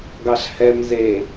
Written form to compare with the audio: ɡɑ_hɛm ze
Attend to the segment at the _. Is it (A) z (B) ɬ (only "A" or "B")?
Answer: B